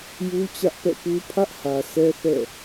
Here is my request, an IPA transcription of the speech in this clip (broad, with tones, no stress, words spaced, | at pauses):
ju˦t͡ɕä˦ʔpɛ̰˦˨pu˦ pʰä˦ʔhä˨ sʰɛ˦θɛ̰˦˨